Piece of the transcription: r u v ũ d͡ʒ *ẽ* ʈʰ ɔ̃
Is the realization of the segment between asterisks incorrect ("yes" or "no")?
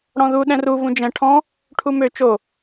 yes